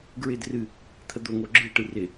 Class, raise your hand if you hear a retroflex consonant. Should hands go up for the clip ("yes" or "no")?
yes